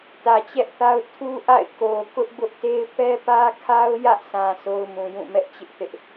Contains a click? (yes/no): no